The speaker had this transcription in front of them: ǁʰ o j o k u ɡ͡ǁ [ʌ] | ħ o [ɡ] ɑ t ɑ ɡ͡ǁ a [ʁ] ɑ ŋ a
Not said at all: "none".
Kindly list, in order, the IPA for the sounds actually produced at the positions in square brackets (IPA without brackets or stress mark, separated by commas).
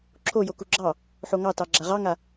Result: ɑ, ŋ, ʁ